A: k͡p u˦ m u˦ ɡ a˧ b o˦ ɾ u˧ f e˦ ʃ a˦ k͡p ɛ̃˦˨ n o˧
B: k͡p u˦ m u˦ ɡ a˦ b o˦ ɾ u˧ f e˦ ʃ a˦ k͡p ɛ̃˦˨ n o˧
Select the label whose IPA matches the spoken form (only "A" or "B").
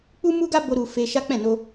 B